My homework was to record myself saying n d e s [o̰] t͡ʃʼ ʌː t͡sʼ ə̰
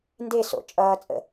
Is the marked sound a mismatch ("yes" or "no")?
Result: no